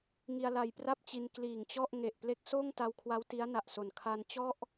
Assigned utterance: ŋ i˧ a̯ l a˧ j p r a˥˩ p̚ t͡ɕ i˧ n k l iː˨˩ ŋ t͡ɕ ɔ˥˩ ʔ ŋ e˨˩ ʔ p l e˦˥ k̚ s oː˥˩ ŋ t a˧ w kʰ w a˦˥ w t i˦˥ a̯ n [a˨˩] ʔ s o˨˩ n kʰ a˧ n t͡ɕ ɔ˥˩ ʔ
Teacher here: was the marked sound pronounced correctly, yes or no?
yes